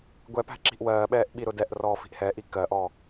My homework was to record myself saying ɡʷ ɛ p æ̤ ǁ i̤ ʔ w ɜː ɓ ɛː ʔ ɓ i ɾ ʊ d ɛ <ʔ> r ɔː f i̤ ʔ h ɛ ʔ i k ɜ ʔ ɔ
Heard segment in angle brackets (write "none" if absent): ʔ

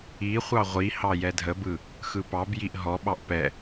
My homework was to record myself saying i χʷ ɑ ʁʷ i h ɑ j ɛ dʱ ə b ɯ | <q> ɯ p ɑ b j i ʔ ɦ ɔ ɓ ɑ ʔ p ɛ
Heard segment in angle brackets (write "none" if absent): x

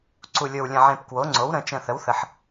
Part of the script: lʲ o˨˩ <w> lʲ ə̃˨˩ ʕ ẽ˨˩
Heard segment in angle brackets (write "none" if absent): w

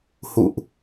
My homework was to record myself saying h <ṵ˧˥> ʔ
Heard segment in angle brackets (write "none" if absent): ṵ˧˨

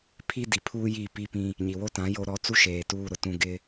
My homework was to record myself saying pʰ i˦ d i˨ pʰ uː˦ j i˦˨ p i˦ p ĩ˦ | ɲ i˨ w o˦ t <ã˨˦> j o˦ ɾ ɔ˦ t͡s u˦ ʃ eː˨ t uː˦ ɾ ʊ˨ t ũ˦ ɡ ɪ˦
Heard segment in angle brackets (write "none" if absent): ã˨˦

